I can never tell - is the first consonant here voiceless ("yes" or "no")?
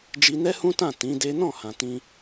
no